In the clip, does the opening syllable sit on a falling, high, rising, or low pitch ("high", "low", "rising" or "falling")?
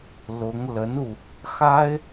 rising